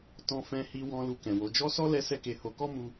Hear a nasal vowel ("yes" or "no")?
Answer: yes